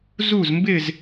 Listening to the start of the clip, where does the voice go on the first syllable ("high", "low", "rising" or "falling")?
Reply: falling